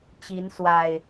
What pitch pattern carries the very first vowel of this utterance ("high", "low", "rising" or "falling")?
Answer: rising